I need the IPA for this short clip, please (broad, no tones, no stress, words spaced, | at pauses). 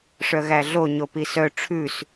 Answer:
ʂœɣæɮo ɲopisœ ʈ͡ʂʰʉs